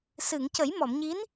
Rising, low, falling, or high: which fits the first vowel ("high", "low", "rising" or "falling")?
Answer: low